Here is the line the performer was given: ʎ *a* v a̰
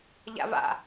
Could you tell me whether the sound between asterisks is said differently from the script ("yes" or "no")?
yes